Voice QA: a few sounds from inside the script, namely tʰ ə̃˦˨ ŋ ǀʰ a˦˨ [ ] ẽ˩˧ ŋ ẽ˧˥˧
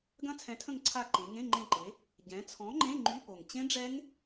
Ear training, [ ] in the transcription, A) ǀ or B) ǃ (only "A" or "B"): B